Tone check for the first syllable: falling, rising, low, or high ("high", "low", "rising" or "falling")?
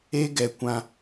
high